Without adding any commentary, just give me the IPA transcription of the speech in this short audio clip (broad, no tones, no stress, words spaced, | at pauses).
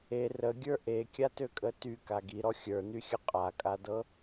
e rəɡʲə˞ ʔekʲatøkʼə tyka ɡiɾɔ xʲə˞nyxʲə qʼakʼadɤ